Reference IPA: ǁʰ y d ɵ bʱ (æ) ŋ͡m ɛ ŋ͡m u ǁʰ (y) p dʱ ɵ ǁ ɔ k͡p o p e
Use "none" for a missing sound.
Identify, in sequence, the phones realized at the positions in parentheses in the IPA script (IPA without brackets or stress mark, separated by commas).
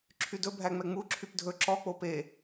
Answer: æ, y